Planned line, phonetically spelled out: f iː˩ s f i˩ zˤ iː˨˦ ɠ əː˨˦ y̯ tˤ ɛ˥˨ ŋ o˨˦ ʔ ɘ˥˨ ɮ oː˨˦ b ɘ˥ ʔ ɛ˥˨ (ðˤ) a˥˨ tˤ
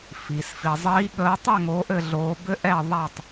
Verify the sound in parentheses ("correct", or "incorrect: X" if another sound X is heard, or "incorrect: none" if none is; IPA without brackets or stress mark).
correct